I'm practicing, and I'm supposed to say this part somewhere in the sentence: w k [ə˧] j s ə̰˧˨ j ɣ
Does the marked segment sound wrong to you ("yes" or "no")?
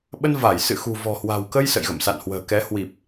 no